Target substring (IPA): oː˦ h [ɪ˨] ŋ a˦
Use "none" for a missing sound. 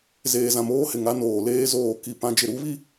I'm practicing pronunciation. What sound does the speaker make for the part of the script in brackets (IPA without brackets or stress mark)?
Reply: ɪ˨